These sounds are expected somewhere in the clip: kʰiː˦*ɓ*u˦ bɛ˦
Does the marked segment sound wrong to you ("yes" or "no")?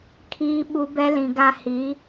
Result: no